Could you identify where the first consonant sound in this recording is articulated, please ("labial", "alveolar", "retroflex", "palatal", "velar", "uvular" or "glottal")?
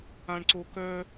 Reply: retroflex